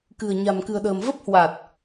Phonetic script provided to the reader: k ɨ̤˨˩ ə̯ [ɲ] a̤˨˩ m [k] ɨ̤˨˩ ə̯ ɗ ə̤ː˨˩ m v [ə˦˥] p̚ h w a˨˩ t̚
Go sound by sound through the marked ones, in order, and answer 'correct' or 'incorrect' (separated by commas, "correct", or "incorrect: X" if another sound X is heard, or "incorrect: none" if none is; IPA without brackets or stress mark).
correct, correct, correct